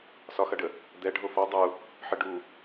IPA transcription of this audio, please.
s ɒ x ɐ ɖ ə | d̪ ɛ ɖʱ o f ɒ dˤ u | ħ ə ɖ u

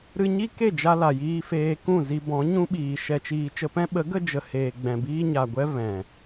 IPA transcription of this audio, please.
ɾ ɨ˧ ɲ i˦ k e˦˨ d͡ʒ a˧ l a˨ j iː˧ f eː˧ k ũ˦˨ z i˧ b ɔ̃˨˦ ɲ ũ˦ ɓ iː˨ ʃ ɛ˧ t͡ʃ iː˧ t͡ʃ ə˧ p ɛ̃˦ ɓ ə˨˦ ɡ ə˧ d͡ʒ ə˨ h eː˨ ɡ͡b ɛ̃˨ b iː˧ ɲ a˨ ɡʷ ɛ˦ v ɛ̃˨

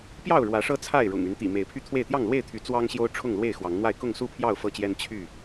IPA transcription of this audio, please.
p j ɑ˥˨ ʊ̯ ɻ w ä˨˦ ʂ ɤ˦ t͡sʰ a˥˨ ɪ̯ ɻ ʊ̰˨˩ ŋ y˨˦ n t̪ ḭ˨˩ m e˨˦ ɪ̯ pʰ y˥˨ t̪ʰ w e˥˨ ɪ̯ t̪ j ɑ˥˨ ŋ l w e˥˨ ɪ̯ t̪ʰ y˨˦ t͡s w ɑ˦ ŋ ɕ j o˦ ʊ̯ ʈ͡ʂʰ ʊ˥˨ ŋ l w e˥˨ ɪ̯ x w ɑ˨˦ ŋ n̪ w a˥˨ ɪ̯ k ʊ˥˨ ŋ s u˥˨ pʰ j ɑ˥˨ ʊ̯ f ɤ˥˨ t͡ɕ j ɛ˦ n t͡ɕʰ y˥˨

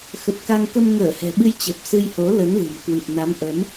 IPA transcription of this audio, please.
x ə˨˩ t̚ k a˧ ŋ k ə˧ m ŋ əː˧˩ h ɛ̤˨˩ ɓ ɨ˧ j t͡ɕ ə˨˩ p̚ s ɨ˧ j h o˨˦ l ə˨˦ n l ɨ̤˨˩ m k w ɨ˨˩ p̚ n a˨˦ m ʔ ə˨˦ m

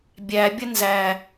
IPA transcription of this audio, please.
bʲ æ bʲ ə n z æ

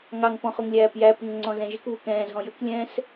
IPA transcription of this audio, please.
ŋ ɑ ŋ p ɔ̃ χ ʊ ŋ lʲ æː p j æ p ʊ ŋ ŋ͡ǀ ɔ̃ z ɛ̃ ʒ ɪ k β u k ɛ̃ː z ɦ ɔ̃ j ə k lʲ ɛ̃ː s

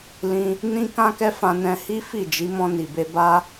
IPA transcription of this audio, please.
l ĩ˧ | n ĩ˧ k ã˧ k ɛ˧ f ã˧ n ɛ̃˧ h i˦ f i˦˨ d͡ʒ i˨˦ m ɔ̃˧ n i˨ b e˧ b a˦

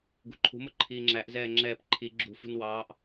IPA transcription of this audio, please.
ɡ ṳ ǃʰ ṳ m ʊ ǃʰ iː ŋ͡ǁ æ ʔ z ɛː ŋ͡ǁ ɛː p ǃʰ i ɡ͡ǁ ṳ f ṳ n w ɑː ʔ

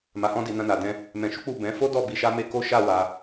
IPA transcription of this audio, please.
m a˧ h ɔ̃˦ d i˧ n ã˧ n a˨ d ɛ̃˧ | m ɛ̃˧ ʃ u˦ k͡p u˦˨ b ɛ̃˨˦ f o˦ d ɔ˦˨ b i˧ ʃ a˦ m e˦ k o˦ ʃ a˦˨ w a˧

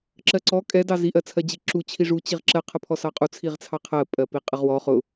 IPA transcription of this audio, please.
ǁ ɜ ǀ ɔ kʼ ɛ d ɑ z i ʔ ɜ t͡sʰ ɜ d͡ʑ i ǁ u t͡ɕʰ i ʐ u t͡ɕ i ʁ ǁ ɜ qʰ ə pʰ ɔ s ɑ qʼ u t͡sʰ i ʁ t͡sʰ ɑ qʰ ɜ pʼ ɜ p i qʼ ə ʁ w ɔ χ ʊ

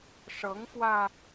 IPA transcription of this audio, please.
ʂ ɤ˨˦ ŋ f w ä˧

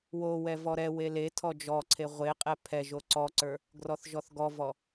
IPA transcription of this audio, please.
w o w ɛ v ɔ ɾ ɛ w e l e tʰ ɔ d͡ʒ ɔ ǀʰ e ʁʷ e qʼ ɛ pʰ ɛ ʒ o ǀ ɔ ǀ ə˞ | ɡ r ɔ θ ʒ ɔ θ ɡ ɔ v ɔ

